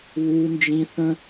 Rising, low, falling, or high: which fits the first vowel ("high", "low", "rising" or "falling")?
high